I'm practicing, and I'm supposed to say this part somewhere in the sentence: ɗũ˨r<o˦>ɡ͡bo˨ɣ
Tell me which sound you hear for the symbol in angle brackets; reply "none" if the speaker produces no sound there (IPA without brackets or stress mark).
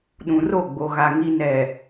o˦˨